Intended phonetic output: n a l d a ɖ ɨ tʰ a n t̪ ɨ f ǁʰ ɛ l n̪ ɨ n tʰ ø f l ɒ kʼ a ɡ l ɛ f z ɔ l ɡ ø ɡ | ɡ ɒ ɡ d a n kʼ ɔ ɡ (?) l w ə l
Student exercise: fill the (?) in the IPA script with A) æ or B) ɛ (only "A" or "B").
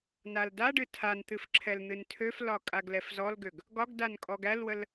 A